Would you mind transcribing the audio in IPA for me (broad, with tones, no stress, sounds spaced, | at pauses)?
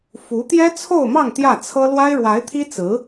f u˧˥ t̪ j ɛ˥ t͡sʰ o˥˧ ʊ̯ m ɑ˥˧ ŋ t̪ j ä˥˩ t͡sʰ ɤ˥ l w a˥ ɪ̯ ɻ w a˧˥ ɪ̯ t̪ʰ i˥ t͡s ɹ̩˧˥